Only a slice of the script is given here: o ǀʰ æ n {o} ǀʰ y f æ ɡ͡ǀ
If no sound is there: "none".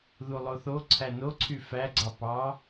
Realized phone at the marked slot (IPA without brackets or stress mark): o